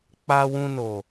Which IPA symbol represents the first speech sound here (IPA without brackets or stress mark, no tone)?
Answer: k͡p